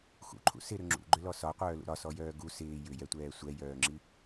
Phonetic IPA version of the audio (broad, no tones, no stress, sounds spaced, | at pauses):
x ṵ ǃʰ ṵ s ɪ ɾ ʏ ŋ͡ǁ ṵ ɡ͡ǃ ʏ l ɔ s ɒ qʷ œː l ṵ ɾ ɒ s ɔ j œː ɡ u s ɪː j ʏ j ɛ tʷ ɛː sʷ ɛ j œː ŋ͡ǁ i